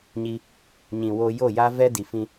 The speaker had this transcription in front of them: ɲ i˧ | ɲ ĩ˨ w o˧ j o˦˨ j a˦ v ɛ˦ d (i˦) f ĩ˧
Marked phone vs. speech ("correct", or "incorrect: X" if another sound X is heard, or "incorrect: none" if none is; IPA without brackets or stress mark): incorrect: i˨